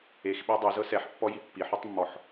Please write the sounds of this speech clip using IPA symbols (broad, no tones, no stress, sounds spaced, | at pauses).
e x ɓ e dˤ o z ɤ s ɛ ħ pː ɔ j i pː i ħ u tˤ mː ɔ ħ